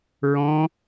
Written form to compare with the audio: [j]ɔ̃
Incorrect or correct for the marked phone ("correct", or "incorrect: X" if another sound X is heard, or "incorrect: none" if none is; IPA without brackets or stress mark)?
incorrect: ɹ